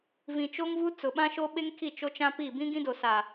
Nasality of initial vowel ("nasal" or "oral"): nasal